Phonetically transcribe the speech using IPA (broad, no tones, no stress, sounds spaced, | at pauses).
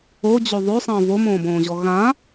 o d͡ʑ o ðˤ ø sˤ ə̃ː v o m õː b õː ʑ ɔ ɣ ã